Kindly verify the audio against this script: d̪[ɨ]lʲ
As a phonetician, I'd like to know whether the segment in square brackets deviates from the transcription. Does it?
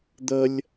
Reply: yes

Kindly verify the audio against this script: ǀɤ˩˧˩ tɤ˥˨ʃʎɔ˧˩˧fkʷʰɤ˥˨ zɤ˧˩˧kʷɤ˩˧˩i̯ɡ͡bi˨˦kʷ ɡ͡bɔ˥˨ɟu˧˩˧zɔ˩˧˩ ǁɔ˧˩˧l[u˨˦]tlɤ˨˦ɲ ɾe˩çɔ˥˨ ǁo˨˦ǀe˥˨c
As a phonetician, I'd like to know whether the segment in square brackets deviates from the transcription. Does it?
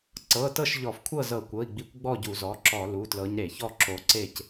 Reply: yes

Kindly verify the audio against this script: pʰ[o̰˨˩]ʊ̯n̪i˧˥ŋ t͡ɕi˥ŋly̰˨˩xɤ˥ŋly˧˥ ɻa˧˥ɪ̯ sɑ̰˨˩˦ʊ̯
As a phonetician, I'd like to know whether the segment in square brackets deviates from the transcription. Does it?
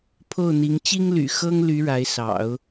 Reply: yes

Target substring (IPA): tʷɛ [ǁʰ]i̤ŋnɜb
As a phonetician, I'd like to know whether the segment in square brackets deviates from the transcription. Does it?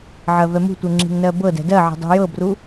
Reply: yes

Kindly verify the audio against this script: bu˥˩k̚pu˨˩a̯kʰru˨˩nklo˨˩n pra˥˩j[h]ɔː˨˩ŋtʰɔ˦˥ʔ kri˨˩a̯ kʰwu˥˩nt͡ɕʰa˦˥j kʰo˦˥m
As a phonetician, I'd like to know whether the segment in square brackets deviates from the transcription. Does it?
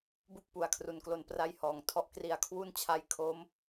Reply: no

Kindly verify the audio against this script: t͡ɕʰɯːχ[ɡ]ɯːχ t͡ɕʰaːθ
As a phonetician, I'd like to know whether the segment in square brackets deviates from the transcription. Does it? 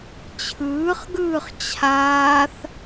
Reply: no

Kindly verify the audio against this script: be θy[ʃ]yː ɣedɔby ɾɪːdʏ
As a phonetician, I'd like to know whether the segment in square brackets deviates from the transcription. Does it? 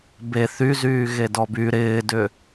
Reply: yes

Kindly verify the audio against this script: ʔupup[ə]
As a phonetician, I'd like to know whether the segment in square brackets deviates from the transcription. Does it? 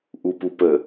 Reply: no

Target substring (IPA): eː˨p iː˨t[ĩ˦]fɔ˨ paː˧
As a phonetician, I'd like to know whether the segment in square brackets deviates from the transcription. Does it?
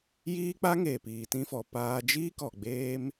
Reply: yes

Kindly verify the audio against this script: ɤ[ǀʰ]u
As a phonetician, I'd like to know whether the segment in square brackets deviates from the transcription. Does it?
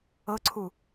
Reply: no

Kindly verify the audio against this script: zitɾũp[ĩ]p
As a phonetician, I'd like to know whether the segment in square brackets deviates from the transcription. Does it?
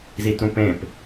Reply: yes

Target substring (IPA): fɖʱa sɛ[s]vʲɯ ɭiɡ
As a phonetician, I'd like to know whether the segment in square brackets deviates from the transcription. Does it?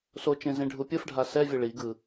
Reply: yes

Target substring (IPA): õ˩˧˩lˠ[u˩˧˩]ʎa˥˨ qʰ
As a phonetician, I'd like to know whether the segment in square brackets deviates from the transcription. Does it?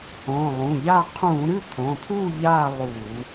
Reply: yes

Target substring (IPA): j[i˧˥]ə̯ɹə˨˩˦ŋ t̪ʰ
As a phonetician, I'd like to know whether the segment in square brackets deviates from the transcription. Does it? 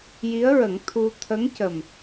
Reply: no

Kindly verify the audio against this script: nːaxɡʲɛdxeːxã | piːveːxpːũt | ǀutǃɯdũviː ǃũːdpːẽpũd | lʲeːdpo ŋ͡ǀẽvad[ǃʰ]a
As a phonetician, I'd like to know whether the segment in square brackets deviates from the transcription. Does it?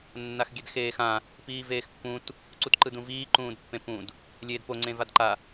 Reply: yes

